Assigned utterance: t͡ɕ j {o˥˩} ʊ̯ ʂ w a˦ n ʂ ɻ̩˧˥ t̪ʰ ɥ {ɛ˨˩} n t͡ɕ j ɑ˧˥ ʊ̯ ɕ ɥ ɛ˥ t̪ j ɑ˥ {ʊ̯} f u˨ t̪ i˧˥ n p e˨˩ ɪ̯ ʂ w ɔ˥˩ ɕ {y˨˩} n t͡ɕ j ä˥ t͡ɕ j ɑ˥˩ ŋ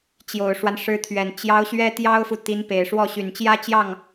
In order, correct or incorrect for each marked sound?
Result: incorrect, correct, correct, correct

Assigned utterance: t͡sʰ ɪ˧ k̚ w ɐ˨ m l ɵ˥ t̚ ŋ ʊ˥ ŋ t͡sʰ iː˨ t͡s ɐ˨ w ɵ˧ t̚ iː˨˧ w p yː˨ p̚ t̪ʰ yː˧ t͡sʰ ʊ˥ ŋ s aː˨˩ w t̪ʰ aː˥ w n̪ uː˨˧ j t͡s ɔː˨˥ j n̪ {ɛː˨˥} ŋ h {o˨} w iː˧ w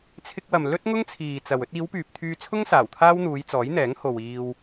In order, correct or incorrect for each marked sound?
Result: correct, correct

